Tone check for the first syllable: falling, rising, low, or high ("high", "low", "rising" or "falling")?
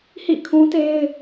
falling